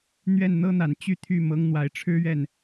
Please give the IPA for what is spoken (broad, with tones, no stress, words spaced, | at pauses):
n̪ɥɛ˥˩nn̪ɤ˥n̪a˨˩n t͡ɕy˥˧t̪ʰy˥˩ mɤ˧˥ŋn̪wa˨˩ɪ̯ʈ͡ʂʰɻ̩˥ɥɛ˥˩n